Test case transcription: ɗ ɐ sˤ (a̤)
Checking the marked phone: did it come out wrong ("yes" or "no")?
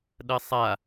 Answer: yes